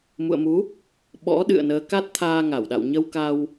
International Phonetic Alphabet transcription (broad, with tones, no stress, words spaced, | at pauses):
mṵ˧˨ə̯mu˨˦ | ɓɔ̰˧˥ ɗɨ̰˧˨ə̯nəː˨˦ ka˦˥t̚t̪ʰaː˧ŋa˧˩wɗa̰˧˨w ɲə˧wka˧w